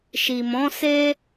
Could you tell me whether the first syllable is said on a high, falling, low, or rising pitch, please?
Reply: low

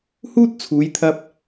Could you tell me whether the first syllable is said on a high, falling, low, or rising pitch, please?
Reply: high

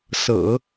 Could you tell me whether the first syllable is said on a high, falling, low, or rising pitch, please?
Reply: low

